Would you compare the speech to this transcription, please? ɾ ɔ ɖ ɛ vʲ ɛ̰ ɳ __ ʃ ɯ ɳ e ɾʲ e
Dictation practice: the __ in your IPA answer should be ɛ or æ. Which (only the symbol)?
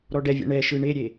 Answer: ɛ